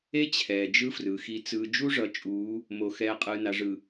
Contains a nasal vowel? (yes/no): no